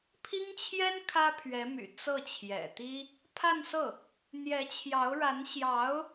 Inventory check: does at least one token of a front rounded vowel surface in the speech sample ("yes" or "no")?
yes